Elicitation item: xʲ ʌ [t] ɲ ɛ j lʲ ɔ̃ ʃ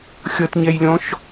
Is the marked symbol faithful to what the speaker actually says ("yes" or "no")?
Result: yes